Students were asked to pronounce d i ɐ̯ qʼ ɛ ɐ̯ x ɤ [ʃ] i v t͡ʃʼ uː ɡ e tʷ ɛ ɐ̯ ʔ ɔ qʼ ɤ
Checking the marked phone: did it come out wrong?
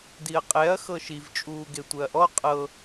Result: no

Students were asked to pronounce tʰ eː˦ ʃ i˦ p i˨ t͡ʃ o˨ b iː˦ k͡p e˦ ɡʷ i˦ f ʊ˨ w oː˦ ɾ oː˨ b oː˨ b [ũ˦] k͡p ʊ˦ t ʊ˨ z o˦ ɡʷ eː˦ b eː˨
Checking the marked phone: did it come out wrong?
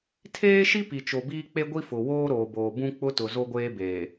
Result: no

